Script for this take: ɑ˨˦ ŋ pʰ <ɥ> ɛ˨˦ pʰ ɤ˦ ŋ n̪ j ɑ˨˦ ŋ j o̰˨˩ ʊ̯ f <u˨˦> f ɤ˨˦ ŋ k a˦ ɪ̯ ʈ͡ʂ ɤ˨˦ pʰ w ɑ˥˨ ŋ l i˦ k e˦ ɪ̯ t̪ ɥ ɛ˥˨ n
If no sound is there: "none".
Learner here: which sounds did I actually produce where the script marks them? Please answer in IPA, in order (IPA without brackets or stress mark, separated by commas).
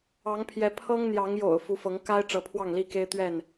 j, u˨˦